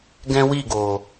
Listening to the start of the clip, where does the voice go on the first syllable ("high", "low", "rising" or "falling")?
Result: high